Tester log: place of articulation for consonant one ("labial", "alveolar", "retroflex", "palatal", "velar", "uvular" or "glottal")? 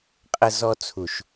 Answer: uvular